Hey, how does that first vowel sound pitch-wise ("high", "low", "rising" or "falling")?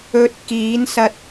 low